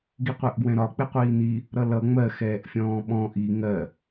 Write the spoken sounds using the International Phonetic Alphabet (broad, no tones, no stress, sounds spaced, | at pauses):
ɡ i qʷ æ ʔ ɡ w ɛ̃ ɾ ɒ k͡p ɪ qʷ iː n i | ɾ ʌ l ʌ ŋ͡m ɜ x ɛː ʔ fʲ ɔ̃ː ɓ ɔ̃ ʔ i ŋ ɜ